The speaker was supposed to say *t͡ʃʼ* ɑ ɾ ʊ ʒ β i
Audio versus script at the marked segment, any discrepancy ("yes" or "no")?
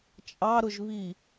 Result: no